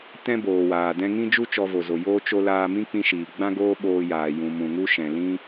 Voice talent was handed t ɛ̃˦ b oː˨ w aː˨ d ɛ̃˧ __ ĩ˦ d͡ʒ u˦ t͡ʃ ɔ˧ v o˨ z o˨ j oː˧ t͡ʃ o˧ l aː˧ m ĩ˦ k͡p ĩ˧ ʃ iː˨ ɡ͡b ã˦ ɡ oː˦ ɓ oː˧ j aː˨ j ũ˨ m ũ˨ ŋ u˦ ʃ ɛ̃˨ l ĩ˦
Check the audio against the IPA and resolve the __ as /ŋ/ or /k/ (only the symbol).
ŋ